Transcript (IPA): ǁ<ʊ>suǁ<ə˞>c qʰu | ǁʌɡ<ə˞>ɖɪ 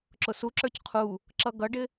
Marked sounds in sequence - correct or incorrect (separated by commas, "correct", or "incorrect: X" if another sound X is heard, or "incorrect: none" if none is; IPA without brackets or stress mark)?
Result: correct, correct, incorrect: ʌ